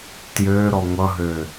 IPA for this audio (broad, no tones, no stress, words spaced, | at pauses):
tjøɾɔ ŋʷʌɦø